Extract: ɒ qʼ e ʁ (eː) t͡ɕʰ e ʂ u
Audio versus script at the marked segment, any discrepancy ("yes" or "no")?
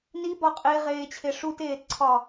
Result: no